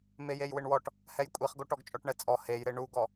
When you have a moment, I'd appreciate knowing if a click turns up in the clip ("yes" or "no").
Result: no